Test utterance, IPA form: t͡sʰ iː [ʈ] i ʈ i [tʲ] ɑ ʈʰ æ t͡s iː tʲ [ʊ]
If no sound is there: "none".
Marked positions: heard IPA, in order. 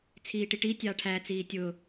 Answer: ʈ, tʲ, ʊ

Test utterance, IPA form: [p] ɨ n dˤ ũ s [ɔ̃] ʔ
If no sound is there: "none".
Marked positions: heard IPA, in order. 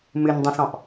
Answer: m, ɔ̃

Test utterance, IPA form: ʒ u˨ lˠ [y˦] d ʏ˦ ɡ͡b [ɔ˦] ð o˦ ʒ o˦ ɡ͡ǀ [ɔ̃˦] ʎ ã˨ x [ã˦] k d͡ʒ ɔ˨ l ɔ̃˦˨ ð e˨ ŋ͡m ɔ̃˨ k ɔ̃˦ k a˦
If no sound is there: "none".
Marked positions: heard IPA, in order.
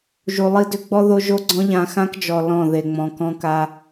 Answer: i˦, ɔ˦, ɔ̃˦, ã˦

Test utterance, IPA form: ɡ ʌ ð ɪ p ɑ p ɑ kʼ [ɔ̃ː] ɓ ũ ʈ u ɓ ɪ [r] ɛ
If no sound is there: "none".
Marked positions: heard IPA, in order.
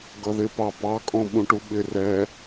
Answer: ɔ̃, r

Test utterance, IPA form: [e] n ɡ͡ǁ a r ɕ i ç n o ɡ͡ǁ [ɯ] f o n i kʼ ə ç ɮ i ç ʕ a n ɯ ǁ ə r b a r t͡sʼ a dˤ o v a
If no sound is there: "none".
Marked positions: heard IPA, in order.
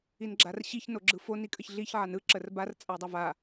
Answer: i, ɯ

